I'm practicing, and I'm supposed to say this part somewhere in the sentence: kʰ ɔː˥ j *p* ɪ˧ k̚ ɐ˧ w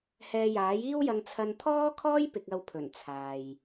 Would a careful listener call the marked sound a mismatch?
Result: no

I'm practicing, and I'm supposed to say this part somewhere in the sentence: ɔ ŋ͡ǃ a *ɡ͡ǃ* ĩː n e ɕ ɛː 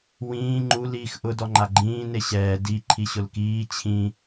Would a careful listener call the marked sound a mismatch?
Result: no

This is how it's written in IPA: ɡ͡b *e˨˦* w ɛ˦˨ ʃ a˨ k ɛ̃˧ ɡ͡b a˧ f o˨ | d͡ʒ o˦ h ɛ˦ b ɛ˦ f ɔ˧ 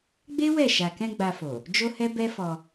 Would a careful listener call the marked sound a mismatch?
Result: yes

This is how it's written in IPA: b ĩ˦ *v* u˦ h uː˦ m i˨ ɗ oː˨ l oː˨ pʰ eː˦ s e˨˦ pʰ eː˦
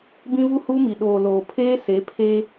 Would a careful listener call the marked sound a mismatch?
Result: no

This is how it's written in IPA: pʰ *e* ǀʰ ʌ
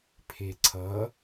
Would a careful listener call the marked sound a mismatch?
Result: no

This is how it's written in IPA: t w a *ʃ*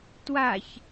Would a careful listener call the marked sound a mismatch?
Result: yes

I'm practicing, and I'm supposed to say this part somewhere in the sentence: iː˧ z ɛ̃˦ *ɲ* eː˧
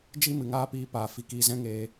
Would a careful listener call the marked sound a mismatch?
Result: yes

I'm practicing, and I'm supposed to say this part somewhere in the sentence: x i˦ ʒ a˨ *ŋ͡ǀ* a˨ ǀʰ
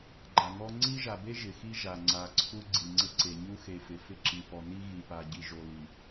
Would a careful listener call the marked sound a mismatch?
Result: no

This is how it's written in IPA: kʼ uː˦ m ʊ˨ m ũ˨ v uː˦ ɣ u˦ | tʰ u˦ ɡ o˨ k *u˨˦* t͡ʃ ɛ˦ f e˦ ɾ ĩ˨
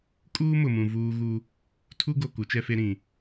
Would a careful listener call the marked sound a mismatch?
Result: no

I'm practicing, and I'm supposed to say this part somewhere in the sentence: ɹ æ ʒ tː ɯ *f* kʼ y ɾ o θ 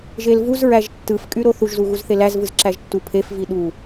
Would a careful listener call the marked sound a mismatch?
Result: no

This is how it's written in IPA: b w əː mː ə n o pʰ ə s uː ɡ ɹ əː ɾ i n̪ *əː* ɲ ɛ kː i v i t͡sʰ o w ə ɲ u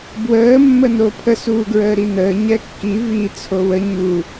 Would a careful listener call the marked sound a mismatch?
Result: no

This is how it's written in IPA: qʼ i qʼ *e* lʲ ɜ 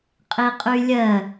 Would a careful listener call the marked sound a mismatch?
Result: yes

